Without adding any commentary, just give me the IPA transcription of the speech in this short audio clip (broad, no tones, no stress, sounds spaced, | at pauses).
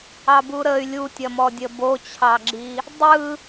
ɑ b u ɾ ə y̯ lʲ u tʲ ɐ m ɔ dʲ ə b o t͡ɕʰ ɑ ɡ͡ǁ i | dˤ ɯ